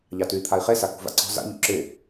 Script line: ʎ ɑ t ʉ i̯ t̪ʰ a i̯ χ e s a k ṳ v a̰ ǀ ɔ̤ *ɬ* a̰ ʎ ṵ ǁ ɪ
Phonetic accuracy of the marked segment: incorrect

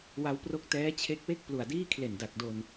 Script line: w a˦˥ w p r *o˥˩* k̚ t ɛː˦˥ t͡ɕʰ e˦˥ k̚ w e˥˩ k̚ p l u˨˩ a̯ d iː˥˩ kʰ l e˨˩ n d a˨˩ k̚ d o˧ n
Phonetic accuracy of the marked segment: incorrect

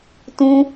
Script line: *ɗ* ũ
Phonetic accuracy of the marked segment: incorrect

